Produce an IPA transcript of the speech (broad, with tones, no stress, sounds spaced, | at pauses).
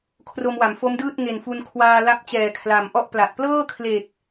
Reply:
kʰ r o˧ m w a˩˦ m f o˦˥ m d ɯː˥˩ t̚ ŋ e˨˩ n f u˧ n kʰ w aː˧ l a˦˥ p̚ t͡ɕ ɛː˨˩ kʰ l a˨˩ m ʔ ɔ˥˩ ʔ p l a˨˩ t̚ p l ɤː˥˩ kʰ l e˨˩ k̚